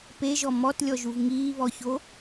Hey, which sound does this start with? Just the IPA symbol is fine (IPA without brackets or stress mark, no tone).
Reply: p